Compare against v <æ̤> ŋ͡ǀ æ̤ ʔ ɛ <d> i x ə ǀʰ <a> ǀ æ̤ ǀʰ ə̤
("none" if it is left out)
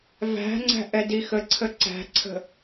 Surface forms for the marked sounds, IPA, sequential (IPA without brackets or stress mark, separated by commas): æ̤, d, ə